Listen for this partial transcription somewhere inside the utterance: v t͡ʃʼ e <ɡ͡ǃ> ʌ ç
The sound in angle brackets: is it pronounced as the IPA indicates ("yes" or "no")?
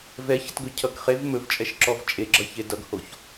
no